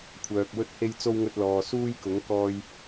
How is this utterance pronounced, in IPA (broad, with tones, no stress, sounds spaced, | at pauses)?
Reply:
kʷʰ œː˧ k̚ w ɵ˥ t̚ h e˥ j t͡s o˥ w ŋ ɵ˧ t̚ l ɔː˨ s uː˥ j k ʊ˨˥ ŋ k ɔː˧ j